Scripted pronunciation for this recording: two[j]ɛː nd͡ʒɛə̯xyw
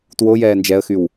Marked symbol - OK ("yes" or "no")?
yes